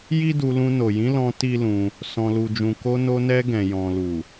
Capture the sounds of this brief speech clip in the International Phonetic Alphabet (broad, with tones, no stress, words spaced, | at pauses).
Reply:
ji˦du˧lũ˧ no˨jĩ˨˦lɔ̃˧ ti˦lũ˧ | sɔ̃˨lu˨d͡ʒũ˨ ko˧no˧nɛ˧ ɡɛ̃˨ jɔ̃˨lu˨